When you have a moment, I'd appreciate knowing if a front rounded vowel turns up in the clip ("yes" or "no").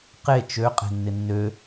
yes